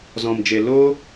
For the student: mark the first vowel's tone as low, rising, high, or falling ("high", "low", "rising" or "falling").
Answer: low